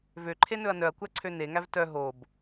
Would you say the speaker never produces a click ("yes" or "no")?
no